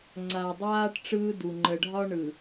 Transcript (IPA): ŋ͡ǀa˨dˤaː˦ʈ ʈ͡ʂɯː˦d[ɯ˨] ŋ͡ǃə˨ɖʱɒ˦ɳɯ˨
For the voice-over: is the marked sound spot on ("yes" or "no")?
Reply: no